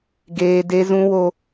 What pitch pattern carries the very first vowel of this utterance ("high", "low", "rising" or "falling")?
high